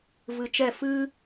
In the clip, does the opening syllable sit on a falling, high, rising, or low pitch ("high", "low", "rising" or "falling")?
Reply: low